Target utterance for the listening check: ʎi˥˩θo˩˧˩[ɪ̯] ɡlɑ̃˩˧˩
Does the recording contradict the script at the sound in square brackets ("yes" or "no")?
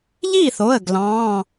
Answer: yes